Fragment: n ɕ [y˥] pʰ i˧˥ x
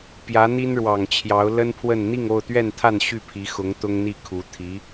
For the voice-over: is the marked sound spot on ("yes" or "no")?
no